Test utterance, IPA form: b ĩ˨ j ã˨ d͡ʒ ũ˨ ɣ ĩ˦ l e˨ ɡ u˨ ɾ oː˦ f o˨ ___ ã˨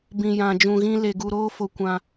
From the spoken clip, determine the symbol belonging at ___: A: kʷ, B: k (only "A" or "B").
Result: A